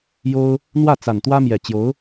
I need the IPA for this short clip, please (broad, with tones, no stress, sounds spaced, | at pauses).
j o˥ ʊ̯ | n̪ w ä˥˩ t͡s a˨˩ n t̪ w ä˥ m j ɛ˨˩ t͡ɕ j o˧˥ ʊ̯